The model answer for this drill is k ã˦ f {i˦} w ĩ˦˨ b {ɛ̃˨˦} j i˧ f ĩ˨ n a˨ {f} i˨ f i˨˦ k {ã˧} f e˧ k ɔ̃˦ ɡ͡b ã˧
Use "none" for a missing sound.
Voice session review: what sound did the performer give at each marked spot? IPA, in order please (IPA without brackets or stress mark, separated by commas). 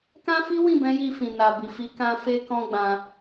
i˦, ɛ̃˨˦, b, ã˧